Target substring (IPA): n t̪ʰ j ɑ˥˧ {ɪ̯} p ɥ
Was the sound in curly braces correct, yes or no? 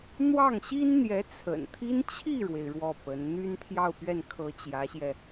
no